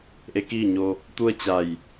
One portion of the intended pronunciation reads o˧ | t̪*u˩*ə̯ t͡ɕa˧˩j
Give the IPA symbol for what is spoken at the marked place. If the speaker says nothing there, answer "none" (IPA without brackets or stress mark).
u˥˨